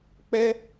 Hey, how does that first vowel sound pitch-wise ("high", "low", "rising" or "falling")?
high